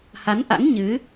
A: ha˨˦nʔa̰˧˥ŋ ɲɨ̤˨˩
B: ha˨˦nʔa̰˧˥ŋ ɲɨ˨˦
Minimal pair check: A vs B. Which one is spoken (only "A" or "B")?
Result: B